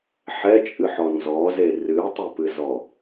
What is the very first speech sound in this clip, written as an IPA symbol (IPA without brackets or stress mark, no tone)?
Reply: ħ